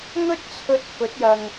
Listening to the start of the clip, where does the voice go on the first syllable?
high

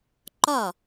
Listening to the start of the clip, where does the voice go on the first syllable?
falling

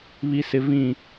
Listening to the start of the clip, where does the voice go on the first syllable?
low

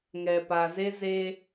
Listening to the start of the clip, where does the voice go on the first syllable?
low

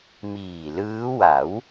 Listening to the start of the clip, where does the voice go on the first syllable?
low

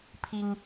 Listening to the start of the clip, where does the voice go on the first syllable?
high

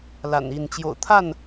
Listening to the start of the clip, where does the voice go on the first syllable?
low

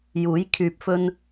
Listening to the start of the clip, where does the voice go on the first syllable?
rising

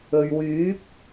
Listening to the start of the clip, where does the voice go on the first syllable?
low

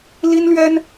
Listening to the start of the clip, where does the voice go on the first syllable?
high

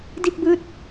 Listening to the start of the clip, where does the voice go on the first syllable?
falling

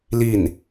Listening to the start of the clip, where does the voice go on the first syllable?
falling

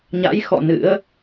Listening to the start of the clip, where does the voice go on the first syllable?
rising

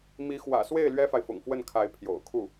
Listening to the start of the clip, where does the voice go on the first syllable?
rising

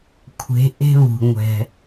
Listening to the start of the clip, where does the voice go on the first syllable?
rising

